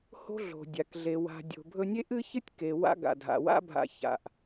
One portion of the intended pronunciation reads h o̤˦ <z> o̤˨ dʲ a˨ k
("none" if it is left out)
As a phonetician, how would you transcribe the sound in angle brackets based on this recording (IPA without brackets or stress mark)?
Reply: ɮ